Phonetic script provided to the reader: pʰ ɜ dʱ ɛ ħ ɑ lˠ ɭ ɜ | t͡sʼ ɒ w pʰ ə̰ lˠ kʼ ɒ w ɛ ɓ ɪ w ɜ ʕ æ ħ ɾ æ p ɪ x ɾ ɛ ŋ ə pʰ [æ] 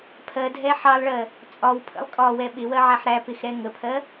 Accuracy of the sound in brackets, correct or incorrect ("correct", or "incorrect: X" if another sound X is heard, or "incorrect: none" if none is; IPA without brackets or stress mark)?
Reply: incorrect: ɜ